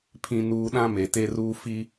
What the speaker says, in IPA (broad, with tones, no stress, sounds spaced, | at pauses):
pʰ ĩ˨ n uː˨ ɗ ã˦ m e˨ t e˦ r uː˦ f i˦